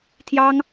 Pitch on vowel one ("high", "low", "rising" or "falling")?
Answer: high